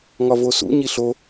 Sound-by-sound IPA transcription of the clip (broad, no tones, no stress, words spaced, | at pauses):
ŋɒvosṵ ɲiɬo